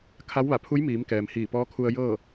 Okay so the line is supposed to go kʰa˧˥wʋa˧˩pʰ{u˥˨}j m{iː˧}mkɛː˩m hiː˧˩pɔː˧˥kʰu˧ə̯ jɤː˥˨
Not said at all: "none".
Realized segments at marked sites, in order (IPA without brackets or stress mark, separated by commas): u˧˥, iː˩˧